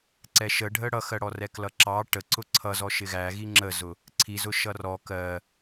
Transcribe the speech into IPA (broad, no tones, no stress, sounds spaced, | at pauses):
ǀ ɛ ʃ ə ɖʱ ə ɽ ʌ x ɜ ɽ ɔ r ɛ k l ʌ ǁ ɑ ʈ ə ǀ ʊ ǀʰ ʌ z ɔ ʃ ɪ ɣ æ ɣ i ŋ͡ǁ ə z ʊ | ǀʰ i z ʊ ʃ ʌ r ɔ k ɜ